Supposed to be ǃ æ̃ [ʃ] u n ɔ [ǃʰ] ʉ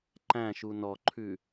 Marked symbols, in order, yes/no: yes, yes

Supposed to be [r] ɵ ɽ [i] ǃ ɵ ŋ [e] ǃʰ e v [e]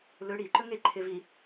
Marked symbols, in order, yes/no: no, yes, yes, no

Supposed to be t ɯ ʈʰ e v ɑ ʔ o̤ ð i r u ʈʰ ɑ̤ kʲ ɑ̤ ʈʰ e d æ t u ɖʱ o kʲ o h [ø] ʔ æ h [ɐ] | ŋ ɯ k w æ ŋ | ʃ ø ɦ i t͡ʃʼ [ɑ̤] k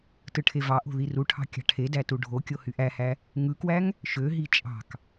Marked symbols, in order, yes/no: no, no, yes

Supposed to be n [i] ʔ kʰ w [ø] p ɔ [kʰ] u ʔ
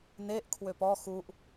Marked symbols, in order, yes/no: no, yes, no

